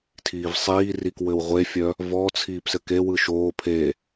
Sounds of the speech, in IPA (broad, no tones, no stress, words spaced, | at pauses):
tʰiːvsˤiːrik wɘwʁʷefʲœ | vɔ t͡sʰiːpsɘkewɯ ʃoː pʰe